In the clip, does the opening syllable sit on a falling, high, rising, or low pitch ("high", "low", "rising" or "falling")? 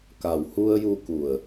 low